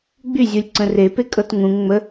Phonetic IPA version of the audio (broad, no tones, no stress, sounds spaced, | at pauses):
ɡ͡b y zʲ u lʲ ǀ ə̃ r e p e kʼ ɤ t ŋ ũ ŋ ŋ͡m ə